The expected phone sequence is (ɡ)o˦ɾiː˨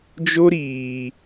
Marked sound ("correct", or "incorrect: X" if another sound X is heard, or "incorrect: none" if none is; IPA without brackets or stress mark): incorrect: d͡ʒ